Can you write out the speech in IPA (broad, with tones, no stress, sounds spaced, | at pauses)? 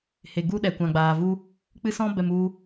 h e˨ ɡ u˦ ɗ ɛ˨ kʷ ã˨ ɡ͡b aː˨ v u˧ | k͡p ɨ˧ s ɔ̃˧ b ɛ˨ m u˧